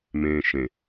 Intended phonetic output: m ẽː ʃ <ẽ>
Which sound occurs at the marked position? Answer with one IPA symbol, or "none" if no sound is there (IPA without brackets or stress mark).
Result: ẽ